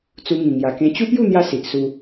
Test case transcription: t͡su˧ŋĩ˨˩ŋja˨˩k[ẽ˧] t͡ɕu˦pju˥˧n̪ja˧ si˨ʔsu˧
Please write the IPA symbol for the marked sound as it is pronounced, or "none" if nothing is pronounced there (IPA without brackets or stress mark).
ẽ˧